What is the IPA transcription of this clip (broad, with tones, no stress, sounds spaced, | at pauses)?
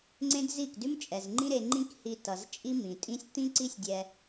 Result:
ŋ͡ǀ ẽ˦ d z i˦˨ k d ʉ˦ m t͡ʃʼ ɛ˨ z ŋ͡ǃ ĩ˦ ɾ e˧ ŋ͡ǃ ĩ˦ k h i˧ t ʌ˨ z t͡ʃʼ i˦ m ĩ˨ tʼ ĩ˦ sʲ t̪ ĩ˦ ǀ i˦ sʲ dʲ ɛ˧